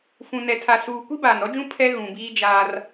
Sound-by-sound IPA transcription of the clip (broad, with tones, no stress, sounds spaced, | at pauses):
f ũ˨ n ɛ˨ tʰ a˨ s uː˨ kʷ i˦ b aː˨ n ɾ ɔ˦ d͡ʒ ũ˦ pʰ ɛ˦ ɣ ũ˨ b iː˦ d͡ʒ aː˦ r